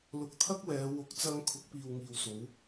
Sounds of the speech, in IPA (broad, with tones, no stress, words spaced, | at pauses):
lʊ˨˥k̚t̪ʰɐ˥k̚wɛː˨˧ wʊ˨˥k̚t͡sɐ˧ŋ kʰʊ˨˥k̚piː˨wŋiː˨wso˨˧w